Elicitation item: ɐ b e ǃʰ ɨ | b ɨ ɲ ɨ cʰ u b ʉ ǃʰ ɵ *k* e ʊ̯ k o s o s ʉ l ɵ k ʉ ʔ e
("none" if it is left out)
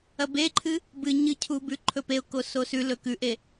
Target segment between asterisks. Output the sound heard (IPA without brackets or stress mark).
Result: p